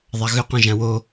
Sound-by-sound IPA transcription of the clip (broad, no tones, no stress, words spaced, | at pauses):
ðˤaɣʏ qɔ̃ʒãwo